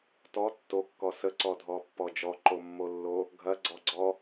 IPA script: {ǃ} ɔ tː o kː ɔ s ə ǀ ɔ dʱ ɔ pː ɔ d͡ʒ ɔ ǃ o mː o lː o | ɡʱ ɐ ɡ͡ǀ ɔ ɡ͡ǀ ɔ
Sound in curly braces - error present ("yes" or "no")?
yes